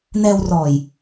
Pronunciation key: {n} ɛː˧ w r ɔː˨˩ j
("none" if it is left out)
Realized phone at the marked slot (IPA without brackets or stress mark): n